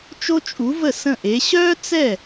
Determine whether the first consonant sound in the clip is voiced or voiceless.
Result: voiceless